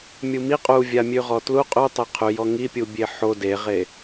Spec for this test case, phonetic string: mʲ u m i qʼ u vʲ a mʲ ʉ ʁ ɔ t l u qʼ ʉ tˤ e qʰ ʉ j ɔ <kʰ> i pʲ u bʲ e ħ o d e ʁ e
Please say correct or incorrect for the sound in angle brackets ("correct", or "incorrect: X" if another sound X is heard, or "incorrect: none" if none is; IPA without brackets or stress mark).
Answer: incorrect: ŋ